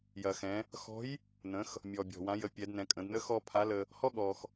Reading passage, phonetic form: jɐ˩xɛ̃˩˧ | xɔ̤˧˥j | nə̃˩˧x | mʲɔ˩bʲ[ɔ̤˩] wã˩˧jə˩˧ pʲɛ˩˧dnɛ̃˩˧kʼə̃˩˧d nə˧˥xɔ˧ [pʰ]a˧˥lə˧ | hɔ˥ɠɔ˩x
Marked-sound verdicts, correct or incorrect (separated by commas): correct, correct